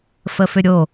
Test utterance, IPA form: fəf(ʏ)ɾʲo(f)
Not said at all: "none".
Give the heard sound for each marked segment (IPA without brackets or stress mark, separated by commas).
ʏ, none